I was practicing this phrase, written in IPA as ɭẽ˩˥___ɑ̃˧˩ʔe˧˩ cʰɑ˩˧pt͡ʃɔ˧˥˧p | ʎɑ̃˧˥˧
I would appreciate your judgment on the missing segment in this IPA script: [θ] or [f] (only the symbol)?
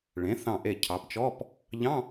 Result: θ